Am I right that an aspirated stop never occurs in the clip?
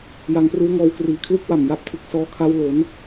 no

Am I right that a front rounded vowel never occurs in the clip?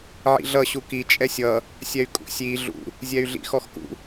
no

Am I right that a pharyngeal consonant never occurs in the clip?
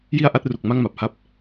yes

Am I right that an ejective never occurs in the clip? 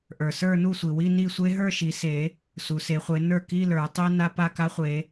yes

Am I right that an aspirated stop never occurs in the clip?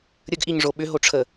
no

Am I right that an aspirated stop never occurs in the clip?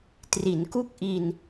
yes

